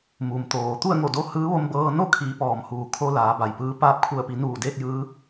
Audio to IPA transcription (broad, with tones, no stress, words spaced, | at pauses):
mu˩mt̪oː˩ t̪u˥˨ə̯ŋo˧˩do˧ hɯː˧˥ʋo˧mbɤː˧ no˥˨kʰiː˩˧ pɔː˩mhuː˩kʰo˧ laː˩˧ba˩jpɯː˧˥ paː˧p̚kʰu˧˩ə̯pi˩˧ nuː˧˩deː˥˨k̚ jɯː˧˥